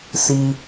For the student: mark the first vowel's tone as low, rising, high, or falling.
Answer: high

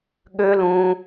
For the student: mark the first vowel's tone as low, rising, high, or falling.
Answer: high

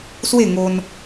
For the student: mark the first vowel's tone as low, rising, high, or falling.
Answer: falling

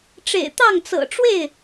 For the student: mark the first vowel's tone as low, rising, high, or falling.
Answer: low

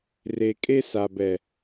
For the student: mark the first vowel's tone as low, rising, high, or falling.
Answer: low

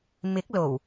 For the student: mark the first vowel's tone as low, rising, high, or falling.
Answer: rising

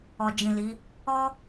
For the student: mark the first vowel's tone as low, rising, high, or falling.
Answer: low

